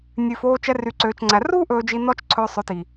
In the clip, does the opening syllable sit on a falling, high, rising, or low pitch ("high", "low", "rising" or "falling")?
low